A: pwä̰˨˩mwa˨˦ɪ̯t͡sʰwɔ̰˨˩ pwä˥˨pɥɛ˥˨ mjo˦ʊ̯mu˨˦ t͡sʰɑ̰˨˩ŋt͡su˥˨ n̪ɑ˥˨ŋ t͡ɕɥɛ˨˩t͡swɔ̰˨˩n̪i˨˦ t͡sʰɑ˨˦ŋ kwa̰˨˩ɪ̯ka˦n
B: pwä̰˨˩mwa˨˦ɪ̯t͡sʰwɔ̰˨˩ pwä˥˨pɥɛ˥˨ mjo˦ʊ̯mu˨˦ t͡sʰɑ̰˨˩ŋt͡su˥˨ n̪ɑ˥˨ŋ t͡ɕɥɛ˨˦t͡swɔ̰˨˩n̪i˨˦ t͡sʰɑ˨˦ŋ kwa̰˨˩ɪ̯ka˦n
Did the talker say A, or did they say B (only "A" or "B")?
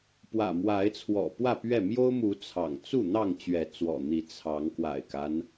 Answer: B